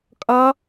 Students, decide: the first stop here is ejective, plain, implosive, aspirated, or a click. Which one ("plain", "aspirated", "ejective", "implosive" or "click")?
ejective